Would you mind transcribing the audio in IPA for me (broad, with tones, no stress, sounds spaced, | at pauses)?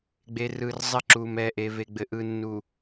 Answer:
ɡ͡b e˨ r ɯ˨ r zˤ ɘ˦˨ ǁ u˨ m ɛ˨ ʔ e˨ v e˨ ɡ͡b ɘ˨ ʔ ɯ˨ nː u˨